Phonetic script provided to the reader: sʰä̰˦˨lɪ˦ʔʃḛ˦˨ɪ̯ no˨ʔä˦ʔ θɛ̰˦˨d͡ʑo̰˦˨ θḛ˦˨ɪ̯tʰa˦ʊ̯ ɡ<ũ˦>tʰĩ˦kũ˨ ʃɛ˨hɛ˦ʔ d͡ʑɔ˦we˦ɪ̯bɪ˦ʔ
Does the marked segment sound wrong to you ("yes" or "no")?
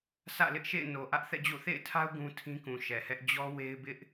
no